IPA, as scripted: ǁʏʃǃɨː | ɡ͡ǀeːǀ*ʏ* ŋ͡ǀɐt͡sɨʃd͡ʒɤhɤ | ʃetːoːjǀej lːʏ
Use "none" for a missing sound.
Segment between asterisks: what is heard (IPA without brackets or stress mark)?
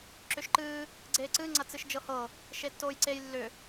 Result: ɨ